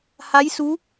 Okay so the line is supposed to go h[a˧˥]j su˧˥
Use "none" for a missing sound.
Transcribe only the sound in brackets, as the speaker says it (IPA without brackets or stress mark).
a˧˥